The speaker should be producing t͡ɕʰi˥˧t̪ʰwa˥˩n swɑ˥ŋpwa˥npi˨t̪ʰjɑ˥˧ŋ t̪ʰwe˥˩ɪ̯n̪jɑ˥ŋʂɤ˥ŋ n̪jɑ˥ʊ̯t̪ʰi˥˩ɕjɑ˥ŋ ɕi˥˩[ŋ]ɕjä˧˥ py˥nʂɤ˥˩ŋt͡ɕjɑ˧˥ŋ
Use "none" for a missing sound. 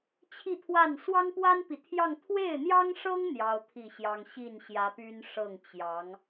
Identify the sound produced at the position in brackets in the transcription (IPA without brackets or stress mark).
n